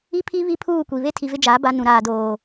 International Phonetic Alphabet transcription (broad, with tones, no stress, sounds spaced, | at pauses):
i˦ pʰ i˦ β i˦ pʰ uː˦˨ kʷ i˨ β e˦ tʰ i˨ v ɪ˦ d͡ʒ aː˨˦ b a˦ n ũ˨ ɾ aː˨ d oː˨